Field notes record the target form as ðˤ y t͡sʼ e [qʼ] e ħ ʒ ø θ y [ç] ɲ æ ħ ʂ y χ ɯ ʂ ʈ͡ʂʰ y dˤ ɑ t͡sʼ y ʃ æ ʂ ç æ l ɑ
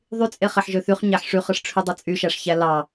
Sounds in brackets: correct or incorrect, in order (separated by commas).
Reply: incorrect, incorrect